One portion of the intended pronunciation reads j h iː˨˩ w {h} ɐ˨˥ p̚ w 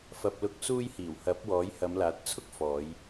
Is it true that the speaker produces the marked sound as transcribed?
yes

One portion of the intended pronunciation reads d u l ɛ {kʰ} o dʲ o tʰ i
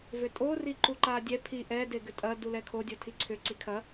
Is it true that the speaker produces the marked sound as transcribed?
yes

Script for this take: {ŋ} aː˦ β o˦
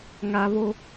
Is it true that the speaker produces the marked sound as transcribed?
yes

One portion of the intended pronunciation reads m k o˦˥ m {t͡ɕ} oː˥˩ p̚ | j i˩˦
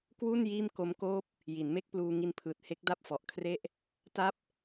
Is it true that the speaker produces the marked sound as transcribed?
no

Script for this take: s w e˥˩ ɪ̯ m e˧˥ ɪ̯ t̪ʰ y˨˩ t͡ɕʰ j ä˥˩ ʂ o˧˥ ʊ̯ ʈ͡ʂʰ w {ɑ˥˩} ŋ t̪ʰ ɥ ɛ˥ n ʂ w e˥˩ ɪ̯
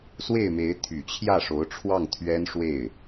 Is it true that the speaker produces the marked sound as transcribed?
yes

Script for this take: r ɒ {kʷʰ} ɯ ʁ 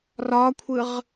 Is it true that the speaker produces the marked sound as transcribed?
yes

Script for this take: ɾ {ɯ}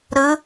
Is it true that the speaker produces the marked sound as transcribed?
yes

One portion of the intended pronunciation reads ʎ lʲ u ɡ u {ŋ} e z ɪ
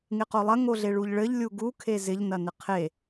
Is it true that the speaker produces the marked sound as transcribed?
no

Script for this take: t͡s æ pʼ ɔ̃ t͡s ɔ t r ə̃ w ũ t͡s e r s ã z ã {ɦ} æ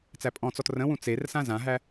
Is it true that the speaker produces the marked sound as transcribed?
yes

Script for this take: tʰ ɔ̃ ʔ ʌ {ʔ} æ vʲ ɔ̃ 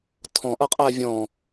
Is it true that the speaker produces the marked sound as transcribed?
no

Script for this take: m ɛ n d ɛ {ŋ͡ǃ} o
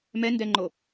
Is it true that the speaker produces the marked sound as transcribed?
yes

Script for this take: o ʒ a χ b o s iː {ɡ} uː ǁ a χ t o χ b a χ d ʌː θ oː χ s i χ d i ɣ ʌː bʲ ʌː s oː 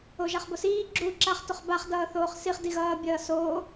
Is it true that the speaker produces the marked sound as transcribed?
no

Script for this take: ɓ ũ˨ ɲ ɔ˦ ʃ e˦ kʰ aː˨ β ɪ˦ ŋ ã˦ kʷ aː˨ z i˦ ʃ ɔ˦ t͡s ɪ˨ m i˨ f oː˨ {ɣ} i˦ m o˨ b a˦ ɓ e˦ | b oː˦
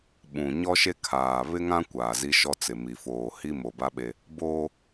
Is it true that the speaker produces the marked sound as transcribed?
no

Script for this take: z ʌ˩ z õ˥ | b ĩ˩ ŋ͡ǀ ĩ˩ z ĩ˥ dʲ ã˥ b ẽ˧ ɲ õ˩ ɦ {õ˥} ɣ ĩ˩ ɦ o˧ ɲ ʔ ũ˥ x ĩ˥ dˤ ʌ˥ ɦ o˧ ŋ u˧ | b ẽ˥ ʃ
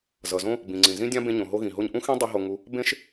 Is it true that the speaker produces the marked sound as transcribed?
no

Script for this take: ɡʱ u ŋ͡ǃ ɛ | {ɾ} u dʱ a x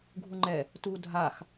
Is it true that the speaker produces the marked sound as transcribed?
no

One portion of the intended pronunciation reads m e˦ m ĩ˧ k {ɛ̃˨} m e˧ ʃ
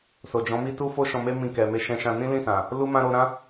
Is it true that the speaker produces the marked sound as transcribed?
no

